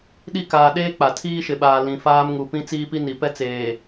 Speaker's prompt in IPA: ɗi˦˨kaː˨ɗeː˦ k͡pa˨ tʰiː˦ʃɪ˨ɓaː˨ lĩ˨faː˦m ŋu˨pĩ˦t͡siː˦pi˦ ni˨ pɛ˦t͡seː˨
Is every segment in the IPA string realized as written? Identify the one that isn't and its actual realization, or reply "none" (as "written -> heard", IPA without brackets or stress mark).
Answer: none